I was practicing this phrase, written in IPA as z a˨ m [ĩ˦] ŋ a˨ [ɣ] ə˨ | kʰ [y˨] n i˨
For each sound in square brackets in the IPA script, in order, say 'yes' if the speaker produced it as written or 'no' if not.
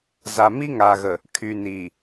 no, yes, yes

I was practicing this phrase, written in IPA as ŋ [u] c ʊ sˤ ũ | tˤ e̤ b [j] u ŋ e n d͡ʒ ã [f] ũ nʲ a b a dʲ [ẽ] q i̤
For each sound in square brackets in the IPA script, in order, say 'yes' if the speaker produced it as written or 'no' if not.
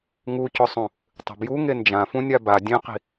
yes, yes, yes, yes

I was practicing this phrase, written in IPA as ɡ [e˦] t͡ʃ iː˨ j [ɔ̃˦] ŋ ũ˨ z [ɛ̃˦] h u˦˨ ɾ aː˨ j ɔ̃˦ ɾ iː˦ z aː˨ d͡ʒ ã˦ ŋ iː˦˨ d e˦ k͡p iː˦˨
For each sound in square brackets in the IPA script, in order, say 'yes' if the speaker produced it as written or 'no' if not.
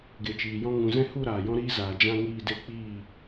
no, yes, yes

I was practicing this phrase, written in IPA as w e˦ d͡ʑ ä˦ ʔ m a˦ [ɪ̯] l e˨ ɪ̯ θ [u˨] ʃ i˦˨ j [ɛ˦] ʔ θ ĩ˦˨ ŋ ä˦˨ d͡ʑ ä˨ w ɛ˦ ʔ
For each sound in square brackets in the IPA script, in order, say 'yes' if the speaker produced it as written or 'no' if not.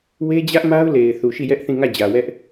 no, yes, yes

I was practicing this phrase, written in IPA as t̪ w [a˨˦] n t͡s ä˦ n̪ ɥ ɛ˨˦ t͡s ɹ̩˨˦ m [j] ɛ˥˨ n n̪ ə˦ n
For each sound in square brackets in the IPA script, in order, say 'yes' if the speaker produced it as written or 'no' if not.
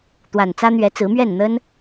no, no

